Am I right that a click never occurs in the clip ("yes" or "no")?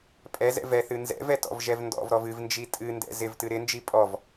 yes